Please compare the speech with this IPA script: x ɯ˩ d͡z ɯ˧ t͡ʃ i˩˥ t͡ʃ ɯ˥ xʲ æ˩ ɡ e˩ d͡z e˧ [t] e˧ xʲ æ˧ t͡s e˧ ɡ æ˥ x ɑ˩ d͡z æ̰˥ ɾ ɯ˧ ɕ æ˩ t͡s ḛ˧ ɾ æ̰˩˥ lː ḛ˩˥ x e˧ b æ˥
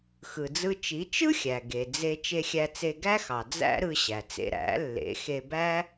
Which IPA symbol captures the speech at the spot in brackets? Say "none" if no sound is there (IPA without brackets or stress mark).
t͡ʃ